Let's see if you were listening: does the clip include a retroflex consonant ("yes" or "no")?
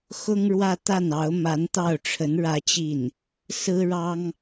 yes